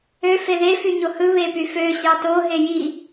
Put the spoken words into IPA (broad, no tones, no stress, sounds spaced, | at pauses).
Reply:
ø f e ð e f y ɲ o h ɯ β e p y f ø ɕ ɑ t o ɦ e j i